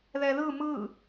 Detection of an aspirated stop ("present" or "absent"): absent